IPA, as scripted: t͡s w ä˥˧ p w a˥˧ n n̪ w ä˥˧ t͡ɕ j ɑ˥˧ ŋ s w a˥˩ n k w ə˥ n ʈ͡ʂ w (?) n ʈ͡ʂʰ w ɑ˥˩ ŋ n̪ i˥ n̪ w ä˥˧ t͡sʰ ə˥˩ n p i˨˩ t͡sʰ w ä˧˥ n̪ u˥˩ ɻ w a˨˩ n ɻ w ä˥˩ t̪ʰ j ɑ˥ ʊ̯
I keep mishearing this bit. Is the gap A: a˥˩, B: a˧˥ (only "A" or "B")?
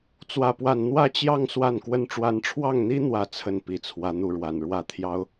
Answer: B